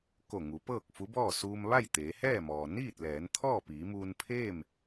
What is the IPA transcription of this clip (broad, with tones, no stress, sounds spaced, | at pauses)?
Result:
k o˧˩ ŋ u˩˧ p ɤː˥˨ k̚ f u˧˥ b ɔː˥˨ s uː˧ m ʋ a˥˨ j t̪ eː˩˧ h ɛː˥˨ m ɔː˩ n iː˥˨ t̚ l ɛː˩˧ n t̪ʰ ɔː˥˨ p iː˩˧ m uː˧ n pʰ eː˥˨ m